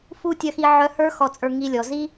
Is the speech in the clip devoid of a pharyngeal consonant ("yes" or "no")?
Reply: no